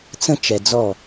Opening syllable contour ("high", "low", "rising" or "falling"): high